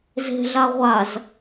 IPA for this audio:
z e̤ ɮ a ʁʷ a z

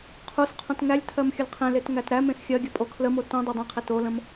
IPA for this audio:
qʰ u s qʰ õ t ŋ æ lʲ tʰ ɜ m xʲ ə l qʰ ẽ l e t ŋ æ t ɾ æ m ẽ s xʲ ɜ ɡʲ ə pʼ o kʰ l ə m o t õ dˤ ɜ dˤ ẽ qʰ e t o l ə̃ m

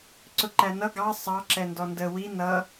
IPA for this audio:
ǀ ʊ ǃ æ n ʌ ɡ ɑ sˤ ɑ ǁ ɛ n d ɔ n d ə w i n ʌ

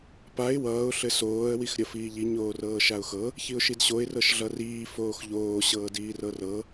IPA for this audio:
p a ɪ̯ w ʌː ʊ̯ ɬ ɘ s oː ə̯ w i x ɾʲ ʌ f iː ʎ i ɲ oː r ɤː ʃ a ʊ̯ x ɤ | ç i ʊ̯ ʃ i d ɕ o ɪ̯ r ɤ ʃ ɮ ʌ r iː f oː x ʎ oː ɕ ɤː d iː r ɤ r ɤ

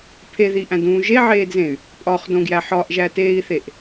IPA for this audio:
pʰ e ð i ʔ æ̃ d ũː ʒ e ʕ eː d z ẽ y̯ | pʼ ɒ χ d õ ɡ j æ ħ ɒ ʔ ʒ æ t eː i̯ θ e ʔ

